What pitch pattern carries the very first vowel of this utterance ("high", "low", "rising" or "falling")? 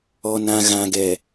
low